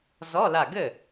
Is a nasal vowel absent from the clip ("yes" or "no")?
yes